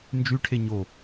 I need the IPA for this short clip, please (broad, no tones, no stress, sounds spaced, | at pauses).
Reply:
n d͡ʒ y ʈʰ e ɲ o